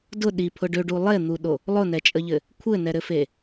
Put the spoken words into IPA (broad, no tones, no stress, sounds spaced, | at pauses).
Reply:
d ʊ ɗ i pʰ ʊ ɖ ø ɖ u lˠ e n̪ u ɗ o | lˠ ʊ n ɛ t͡ʃʼ ə ʎ ɘ | kʷʰ ɘ n ɛ ɾ ɘ f e